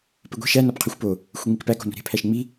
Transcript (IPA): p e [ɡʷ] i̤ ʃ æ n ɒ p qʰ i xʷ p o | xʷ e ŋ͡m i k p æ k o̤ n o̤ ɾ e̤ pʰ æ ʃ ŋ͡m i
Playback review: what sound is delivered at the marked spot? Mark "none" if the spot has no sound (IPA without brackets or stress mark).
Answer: ɡʷ